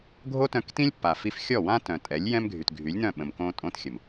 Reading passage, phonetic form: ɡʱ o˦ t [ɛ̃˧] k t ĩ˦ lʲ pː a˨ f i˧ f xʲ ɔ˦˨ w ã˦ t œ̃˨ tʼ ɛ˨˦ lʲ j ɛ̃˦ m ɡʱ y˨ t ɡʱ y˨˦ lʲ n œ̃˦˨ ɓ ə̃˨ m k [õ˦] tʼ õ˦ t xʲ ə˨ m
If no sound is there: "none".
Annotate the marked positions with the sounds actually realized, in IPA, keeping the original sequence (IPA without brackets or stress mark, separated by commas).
œ̃˧, õ˧